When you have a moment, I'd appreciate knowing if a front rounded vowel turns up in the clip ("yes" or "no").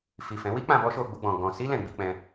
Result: no